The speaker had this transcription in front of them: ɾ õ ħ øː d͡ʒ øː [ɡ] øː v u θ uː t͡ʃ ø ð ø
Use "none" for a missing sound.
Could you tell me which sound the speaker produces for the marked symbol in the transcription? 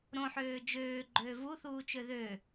ɡ͡ǃ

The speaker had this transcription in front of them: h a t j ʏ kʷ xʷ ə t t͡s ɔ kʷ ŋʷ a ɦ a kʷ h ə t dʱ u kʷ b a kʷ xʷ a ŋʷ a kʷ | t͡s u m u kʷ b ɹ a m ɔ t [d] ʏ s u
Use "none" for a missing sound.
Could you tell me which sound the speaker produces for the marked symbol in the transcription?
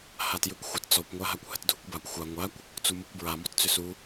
t͡s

